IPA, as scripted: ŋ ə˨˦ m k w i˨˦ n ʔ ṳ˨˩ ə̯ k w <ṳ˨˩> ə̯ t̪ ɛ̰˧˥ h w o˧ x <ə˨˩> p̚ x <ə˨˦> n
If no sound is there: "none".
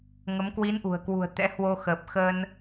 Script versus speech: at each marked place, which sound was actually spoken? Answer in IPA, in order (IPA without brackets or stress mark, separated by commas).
ṳ˨˩, əː˨˩, ə˧